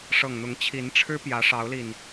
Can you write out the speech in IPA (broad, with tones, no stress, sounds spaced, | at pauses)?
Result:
ʂ ɤ˨˩ ŋ n̪ ʊ˨˦ ŋ t͡ɕʰ i˨˦ n ʈ͡ʂʰ ɻ̩˦ p j ä˨˦ ʂ ɑ˨˦ ʊ̯ l i˨˩ n